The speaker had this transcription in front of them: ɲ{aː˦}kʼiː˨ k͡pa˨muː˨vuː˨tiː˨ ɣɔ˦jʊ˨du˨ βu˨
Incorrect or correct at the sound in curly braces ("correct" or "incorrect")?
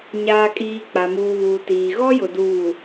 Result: incorrect